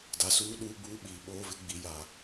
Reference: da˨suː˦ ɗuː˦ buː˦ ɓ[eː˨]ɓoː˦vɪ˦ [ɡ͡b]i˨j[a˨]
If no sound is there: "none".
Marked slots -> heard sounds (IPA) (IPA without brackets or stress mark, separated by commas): iː˨, ɡ͡b, a˨